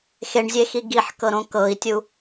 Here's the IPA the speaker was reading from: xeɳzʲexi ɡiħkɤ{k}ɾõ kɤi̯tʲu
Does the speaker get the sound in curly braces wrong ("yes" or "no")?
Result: yes